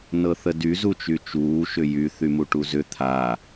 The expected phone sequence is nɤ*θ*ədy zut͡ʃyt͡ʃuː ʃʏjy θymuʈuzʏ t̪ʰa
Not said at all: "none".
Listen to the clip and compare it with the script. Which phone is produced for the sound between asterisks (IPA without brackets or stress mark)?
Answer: θ